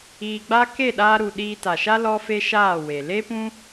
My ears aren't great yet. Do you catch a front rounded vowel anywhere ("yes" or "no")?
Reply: no